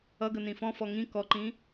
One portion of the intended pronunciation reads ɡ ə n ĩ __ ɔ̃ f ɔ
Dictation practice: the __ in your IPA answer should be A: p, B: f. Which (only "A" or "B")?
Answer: B